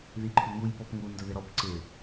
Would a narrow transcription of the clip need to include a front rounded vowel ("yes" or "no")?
yes